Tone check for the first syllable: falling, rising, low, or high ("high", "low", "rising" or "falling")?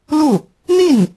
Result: falling